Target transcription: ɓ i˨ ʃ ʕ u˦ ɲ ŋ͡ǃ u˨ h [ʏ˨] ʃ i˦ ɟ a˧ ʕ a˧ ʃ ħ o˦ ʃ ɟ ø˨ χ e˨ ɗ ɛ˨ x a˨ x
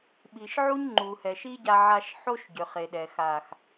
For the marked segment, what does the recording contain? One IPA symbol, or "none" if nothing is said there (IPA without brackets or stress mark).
ɛ˨